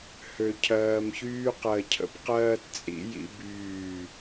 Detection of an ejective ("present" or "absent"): present